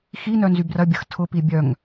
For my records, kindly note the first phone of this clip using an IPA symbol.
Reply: x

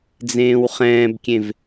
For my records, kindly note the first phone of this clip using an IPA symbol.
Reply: d͡z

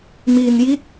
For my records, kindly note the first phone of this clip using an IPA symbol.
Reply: m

